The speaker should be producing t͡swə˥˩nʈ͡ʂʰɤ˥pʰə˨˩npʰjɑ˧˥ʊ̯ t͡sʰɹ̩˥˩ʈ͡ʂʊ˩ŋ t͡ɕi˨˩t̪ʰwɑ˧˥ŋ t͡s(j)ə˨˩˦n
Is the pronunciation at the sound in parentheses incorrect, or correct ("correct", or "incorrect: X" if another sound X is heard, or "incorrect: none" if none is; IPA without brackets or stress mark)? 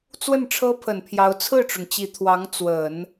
incorrect: w